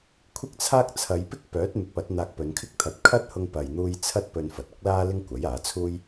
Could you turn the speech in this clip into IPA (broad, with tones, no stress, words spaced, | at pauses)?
kʷʰɪ˥k̚t͡sʰaː˥k̚ t͡sʰɐ˨˧jpɪ˥k̚pœː˨˥t̚ mɪ˨˥k̚pɐ˨˥t̚ n̪aː˧k̚pɵ˨˧nkʰɪ˥k̚t̪ʰɐ˧t̚ kʰɐ˥t̚hʊ˧ŋ pɐ˨jn̪uː˧j t͡sʰɐ˥t̚pɵ˧n fɐ˨t̚ʊ˥k̚laː˥ lɪ˥ŋkʷɐ˨˥jaː˨˥t͡sʰuː˥j